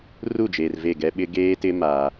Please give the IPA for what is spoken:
r u˦˨ d͡ʒ eː˨ r v e˦˨ ɡ ɛ˦ ɓ ɪ˦ ɡ eː˦ t ɪ˦ m aː˦

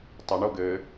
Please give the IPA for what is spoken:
tˤ ɐ ɳ o ɡ ɘ

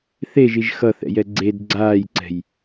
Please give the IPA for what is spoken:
θ e ʒ i ʒ x ʌ θ ɛ̰ j ɛ ɡ͡ǀ e d ɡ͡ǀ aː j ǀ ɛ̤ j

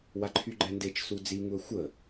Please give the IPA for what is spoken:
w a ǃʰ y ɡ͡ǃ ɛ n d e t͡ʃ s u d͡z i ŋ u ə̯ xʷ ə

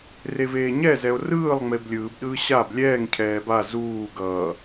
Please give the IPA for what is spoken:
r e v eː ɲ ɛ z ɛ o̯ r ɯː lˠ ŋ͡m e b lʲ ɯː b ɗ ɯː ɕ a b lʲ ɛː ŋ cʰ ɛː b a z uː ɡ ʌː

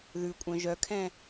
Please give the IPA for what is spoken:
ð ʉ kʷʼ œ̃ ʒ œ kʰ ɛ̃

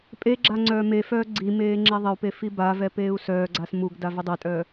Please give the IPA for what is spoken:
pʼ e ɡ͡ǁ a ŋ͡ǀ œː m e f œː ɡ͡ǀ i m eː ŋ͡ǁ ɛ ðˤ ɪ u̯ p e f i b a v ɛ p eː u̯ s œː ɡ͡ǀ a s m u ɡ d a v ɪ dˤ e tʼ œː

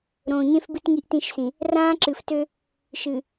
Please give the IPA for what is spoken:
ɾ õː˨ ɲ ẽ˦ f b ɨ˦ t ŋ i˦ ʔ t ĩ˦˨ ʃ s ĩ˨ | r ãː˦ ǁ ɨ˨ f t ø˦ | ʃ ɨ˨

